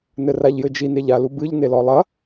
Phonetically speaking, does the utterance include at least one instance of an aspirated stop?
no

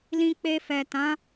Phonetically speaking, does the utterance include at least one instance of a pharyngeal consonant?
no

